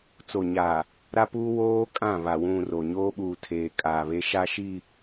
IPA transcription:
t͡so˨ɲaː˨ | ɾa˦puː˦ woː˦ kʼã˦˨βa˨ wũ˨ ro˨ ɲoː˦ɓuː˨ tʰeː˨ kʼaː˨βe˦ ʃa˦ʃi˦˨

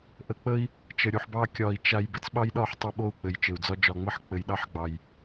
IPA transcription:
ʔə˨k͡pə˦i̯ | t͡ʃə˨ɾʲu˨ħbɑ˦ kʲɒ˨i̯ t͡ʃa˨j bɘ˨t͡sɓɑ˦jɗɒ˦˨ħ tˤɛ˦ɓo˦˨u̯ k͡pɘ˨jt͡ʃɘ˨u̯d͡zɒ˦ d͡ʒɒ˨ŋ͡mə˦˨ħ k͡pɘ˨jɗɑ˦ħɡ͡bɑ˨j

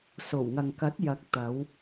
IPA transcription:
so˨˩wŋɐ˨ŋkɐ˨˥t̚ jɐ˨˥k̚ t̪ɐ˨˧w

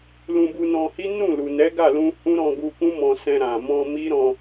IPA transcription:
lũ˧bu˧nɔ̃˧hi˦ nũ˦˨lu˨ nɛ˨˦ɡa˦˨lũ˧ hũ˦ ɾɔ̃˧ɡu˧ kũ˦mɔ̃˧sɛ̃˧ ɾã˨ mɔ̃˧ mi˦ɾɔ̃˧

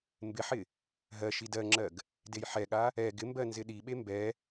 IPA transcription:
mbɪħɪ | ɦɜ ʃidɜŋ͡ǁɜɡ | dejħɛɠa | ɛ ɡɪmbɜ nzɪɗiɓe mbɛ

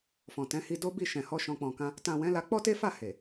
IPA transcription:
fɔ̃˨tɛ̃˨˦hi˧ do˦bi˦˨ʃɛ̃˨hɔ˧ ʃɔ̃˨k͡pɔ̃˨kã˧ | tã˨ wɛ̃˨˦la˧ k͡pɔ˦te˦fa˦˨ he˨

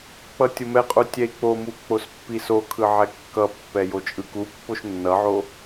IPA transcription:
k͡pʌtʲomɛqʼu tʲɛi̯k͡pomu k͡pospːisokʰɯ ʕɛkːʌpːɛ jot͡ʃʼɯkupːoʃ nːʌʕo

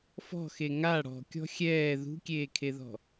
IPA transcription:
fɔ̤xe ŋa ɽɔ̤kʲɔ̤ xʲɛː ðṳkʲeːkʰeðɔ̤

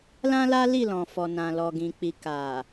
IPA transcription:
lã˦la˦ li˦˨lɔ̃˨fɔ˨nã˨ lɔ˨ɡĩ˨k͡pi˨ ka˨

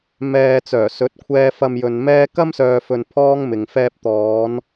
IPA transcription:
mɛː˧t͡sœː˨˩ sɵ˨˥t̚kʷʰɛː˧ fɐ˧mjɵ˨nmɛː˥ kɐ˥msœː˨fɵ˨n pʰɔː˥ŋmɪ˨ŋ fɛː˧p̚t̪ɔː˨˧n

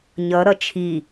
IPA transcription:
ɲʌɾʌ t͡ʃʰi

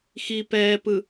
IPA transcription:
xi pɛː pɯ

